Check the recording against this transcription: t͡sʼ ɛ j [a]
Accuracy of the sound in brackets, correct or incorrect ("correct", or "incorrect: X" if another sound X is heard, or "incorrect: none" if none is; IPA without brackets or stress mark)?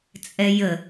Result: incorrect: ə